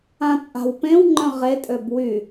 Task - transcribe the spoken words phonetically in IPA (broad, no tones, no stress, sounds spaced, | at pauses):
ã t͡sʼ a̤ w p ẽ w ŋ͡ǃ œ̃ ʁ e tʼ ø b w y